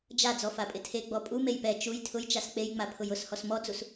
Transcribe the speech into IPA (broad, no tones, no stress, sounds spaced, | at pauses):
d͡ʒ a d͡z ɔ f a pʼ ɪ tʰ e ɡ͡b ɔ pʼ u m e j p ɛ t͡ʃ u j tʰ ʊ j t͡ʃ a s k͡p e j ŋ͡m a pʰ ʊ j ʊ s h ɔ s m ɔ d͡z u s